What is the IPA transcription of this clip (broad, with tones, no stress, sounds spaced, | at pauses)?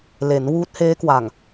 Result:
l e˩˦ n w uː˦˥ t̚ h eː˦˥ k w a˨˩ ŋ